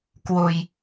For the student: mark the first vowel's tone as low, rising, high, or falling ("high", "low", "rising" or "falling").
low